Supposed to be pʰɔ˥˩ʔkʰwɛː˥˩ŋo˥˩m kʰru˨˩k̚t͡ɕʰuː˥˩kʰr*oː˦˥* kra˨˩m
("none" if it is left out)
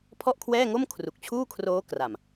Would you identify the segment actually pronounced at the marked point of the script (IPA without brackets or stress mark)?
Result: oː˦˥